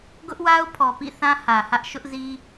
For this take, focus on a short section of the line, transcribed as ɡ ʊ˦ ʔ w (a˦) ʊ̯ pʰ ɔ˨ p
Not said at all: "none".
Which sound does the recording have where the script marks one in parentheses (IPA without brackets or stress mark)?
a˦